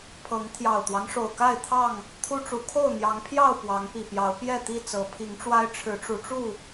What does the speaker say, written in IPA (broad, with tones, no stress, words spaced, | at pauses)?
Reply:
pʰɤ˨˦ŋ t̪ʰjɑ˨˩ʊ̯t̪wɑ˦ŋ ʂo˨˩ʊ̯ka˥˨ɪ̯t̪ʰɑ˥˨ŋ | t̪ʰu˦ʈ͡ʂu˨˦ kʰo˥˨ʊ̯n̪jɑ˨˦ŋpʰjɑ˥˨ʊ̯ pwɑ˨˦ŋpi˨˩pjɑ˨˦ʊ̯ pjɛ˥˨t̪i˥˨ t͡sɤ˨˦pʰi˨˦ŋʈ͡ʂwa˦ɪ̯ ʈ͡ʂʰɻ̩˨˦ʈ͡ʂu˨˦ʈ͡ʂu˥˨